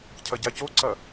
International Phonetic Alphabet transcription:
cʰɐɟacoǀɐ

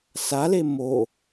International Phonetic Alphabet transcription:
sale mo

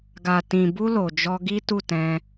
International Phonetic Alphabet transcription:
ɡa˨tĩ˨bu˧ lo˨d͡ʒɔ˧ ɡi˦tu˦˨tɛ̃˧

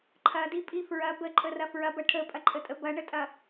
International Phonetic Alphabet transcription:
ǃʰɐdipʼi fɹɐ bəǃʼərɐ fɹɐbɐ ʈʰəpʼɐǃʼətʼə bɐɳətʼɐ

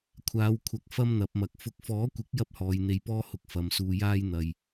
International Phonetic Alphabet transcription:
kʷʰaː˨˧wkʷʰɐ˨k̚ fɐ˥mn̪ɐ˨˥p̚mɐ˨k̚ fʊ˨k̚fɔː˨˥kʷɪ˨˥k̚ jɐ˥p̚hɔː˨˧jn̪e˧jpɔː˥ hʊ˥k̚fɐ˨˧msuː˧ jaː˥jn̪ɐ˨j

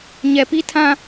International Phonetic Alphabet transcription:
ɲɛ˨pi˦ tʰã˦

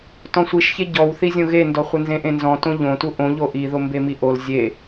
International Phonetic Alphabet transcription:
tɔ̃sʷiʃçe ɟɔwθizʲõ ɣendɔχʷə nzẽʔẽnzɔ̃ tõʎõtu ʔõʎo ʔiðo mbemiʔol zʲe

